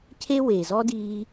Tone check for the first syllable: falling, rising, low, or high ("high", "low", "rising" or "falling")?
high